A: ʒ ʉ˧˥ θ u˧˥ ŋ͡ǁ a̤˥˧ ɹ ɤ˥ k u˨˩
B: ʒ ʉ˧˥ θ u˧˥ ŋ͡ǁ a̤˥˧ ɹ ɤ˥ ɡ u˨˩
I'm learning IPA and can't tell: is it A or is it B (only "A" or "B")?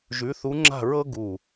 B